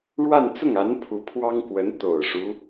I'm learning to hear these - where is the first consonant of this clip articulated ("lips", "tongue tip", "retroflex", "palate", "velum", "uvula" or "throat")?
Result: retroflex